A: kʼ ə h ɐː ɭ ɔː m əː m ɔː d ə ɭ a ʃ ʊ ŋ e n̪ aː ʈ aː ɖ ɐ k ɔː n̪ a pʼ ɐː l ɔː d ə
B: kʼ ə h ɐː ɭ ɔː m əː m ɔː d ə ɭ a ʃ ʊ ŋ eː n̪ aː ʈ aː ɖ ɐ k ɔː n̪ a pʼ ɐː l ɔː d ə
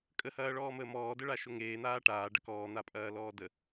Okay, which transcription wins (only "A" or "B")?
B